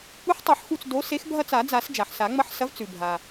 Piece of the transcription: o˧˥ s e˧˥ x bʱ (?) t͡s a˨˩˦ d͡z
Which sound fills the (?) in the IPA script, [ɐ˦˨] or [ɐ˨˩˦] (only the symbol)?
ɐ˦˨